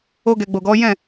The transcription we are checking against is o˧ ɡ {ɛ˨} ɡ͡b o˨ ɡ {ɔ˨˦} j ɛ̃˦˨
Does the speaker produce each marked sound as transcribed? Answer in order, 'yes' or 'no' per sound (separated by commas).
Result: yes, yes